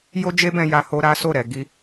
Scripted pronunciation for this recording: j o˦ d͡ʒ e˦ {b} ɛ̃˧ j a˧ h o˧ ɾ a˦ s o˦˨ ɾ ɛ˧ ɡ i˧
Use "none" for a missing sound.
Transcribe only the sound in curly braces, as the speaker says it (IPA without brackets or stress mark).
b